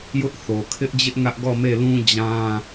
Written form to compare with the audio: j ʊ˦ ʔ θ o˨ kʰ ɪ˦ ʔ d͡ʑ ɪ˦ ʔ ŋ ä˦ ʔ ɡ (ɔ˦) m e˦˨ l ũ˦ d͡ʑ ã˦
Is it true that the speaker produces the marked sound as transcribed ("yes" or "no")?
no